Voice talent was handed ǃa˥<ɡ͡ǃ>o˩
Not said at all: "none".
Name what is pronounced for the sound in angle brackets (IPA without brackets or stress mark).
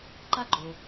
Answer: ɡ͡ǃ